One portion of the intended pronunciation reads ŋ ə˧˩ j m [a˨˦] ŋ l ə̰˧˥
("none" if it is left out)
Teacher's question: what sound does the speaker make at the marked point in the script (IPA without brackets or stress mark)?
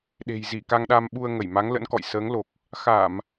a˨˦